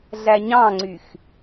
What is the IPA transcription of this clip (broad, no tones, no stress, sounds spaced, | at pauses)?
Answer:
ɮ æ ɲ ɑ̃ ŋ͡ǀ y x